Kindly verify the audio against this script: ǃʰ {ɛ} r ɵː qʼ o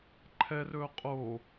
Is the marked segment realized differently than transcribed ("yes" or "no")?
no